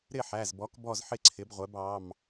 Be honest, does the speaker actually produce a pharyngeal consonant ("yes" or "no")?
yes